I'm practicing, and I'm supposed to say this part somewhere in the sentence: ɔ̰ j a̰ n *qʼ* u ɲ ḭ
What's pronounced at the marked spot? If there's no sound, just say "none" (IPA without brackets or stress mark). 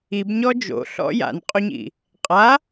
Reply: qʼ